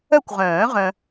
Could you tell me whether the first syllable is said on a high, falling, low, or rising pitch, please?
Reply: falling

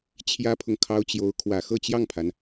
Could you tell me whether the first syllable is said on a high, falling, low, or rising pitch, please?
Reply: high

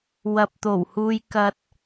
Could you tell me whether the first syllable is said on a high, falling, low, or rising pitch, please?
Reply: low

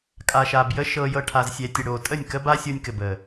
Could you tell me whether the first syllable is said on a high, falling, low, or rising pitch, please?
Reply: low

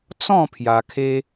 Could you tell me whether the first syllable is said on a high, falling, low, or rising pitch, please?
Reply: falling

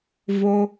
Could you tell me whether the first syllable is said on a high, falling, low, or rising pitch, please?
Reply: low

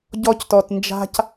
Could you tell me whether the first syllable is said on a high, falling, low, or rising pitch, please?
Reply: high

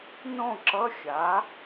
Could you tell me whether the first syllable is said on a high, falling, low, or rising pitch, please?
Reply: falling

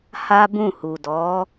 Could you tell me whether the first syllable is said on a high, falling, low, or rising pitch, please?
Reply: high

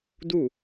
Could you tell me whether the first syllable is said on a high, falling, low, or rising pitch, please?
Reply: falling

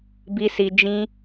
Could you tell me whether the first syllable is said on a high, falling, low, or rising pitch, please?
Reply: high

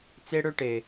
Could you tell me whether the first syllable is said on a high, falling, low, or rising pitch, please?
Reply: high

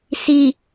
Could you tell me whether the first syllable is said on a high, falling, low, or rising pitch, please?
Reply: low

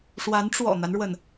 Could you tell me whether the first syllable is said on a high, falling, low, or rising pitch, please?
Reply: rising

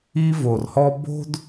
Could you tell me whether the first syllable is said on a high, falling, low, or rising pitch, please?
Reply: high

